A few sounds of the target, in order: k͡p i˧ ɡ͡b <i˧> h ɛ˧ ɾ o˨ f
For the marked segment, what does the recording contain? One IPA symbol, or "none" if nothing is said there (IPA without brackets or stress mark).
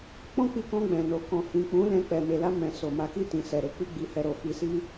i˧